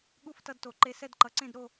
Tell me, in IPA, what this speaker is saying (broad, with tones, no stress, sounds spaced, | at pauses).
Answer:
ɠ u˥˨ f t ʌ˦ d t o˨˩˦ ǃ e˦ s ɛ˥˨ d ǃ ʌ˩˥ ǀ ẽ˥˨ d ɾ o˥˨